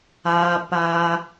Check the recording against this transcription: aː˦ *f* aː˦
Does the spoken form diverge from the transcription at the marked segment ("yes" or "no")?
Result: yes